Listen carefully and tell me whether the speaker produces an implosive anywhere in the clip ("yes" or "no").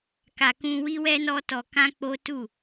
no